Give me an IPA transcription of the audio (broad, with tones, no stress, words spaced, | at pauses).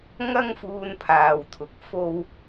ŋɐ˥ŋfuː˧n pʰaː˨wt̪ʰʊ˨k̚ fo˥w